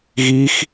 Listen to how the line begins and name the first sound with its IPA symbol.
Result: ɣ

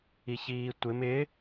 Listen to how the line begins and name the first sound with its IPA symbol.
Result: i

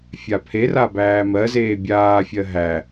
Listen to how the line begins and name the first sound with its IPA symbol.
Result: fʲ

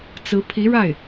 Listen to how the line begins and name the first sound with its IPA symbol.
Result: t͡s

